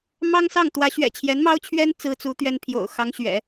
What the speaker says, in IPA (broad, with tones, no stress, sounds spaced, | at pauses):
m ɑ˥ ŋ s ɑ˥˩ ŋ t̪ w ä˧˥ ɕ ɥ ɛ̰˨˩ t͡ɕʰ j ɛ˧˥ n m ɑ˥ ʊ̯ t͡ɕʰ ɥ ɛ˥ n t͡s ɹ̩˥ t͡s u˧˥ t̪ ɥ ɛ˥ n pʰ j o̰˨˩ ʊ̯ x ɑ˧˥ ŋ ɕ ɥ ɛ̰˨˩˦